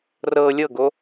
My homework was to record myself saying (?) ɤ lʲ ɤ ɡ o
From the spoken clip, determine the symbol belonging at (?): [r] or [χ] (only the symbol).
r